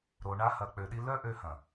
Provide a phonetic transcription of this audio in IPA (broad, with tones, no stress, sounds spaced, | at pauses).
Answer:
ɾ o˧ ɳ a˦ h ɐ˧ k͡p ø˧ ɗ i˦ l œ˦ ʔ ø˧ h ɐ̃˨